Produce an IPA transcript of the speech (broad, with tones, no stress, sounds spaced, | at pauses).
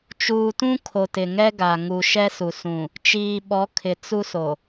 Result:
t͡ʃ uː˨ t ũ˦ kʰ o˨ t ɪ˨ ŋ ɛ˦ ɡ a˨ ŋ u˨ ʃ ɛ˦ s u˨ s ũ˨ | t͡ʃ iː˨ ɓ ɔ˨˦ kʰ ɪ˨ t͡s u˦ s o˨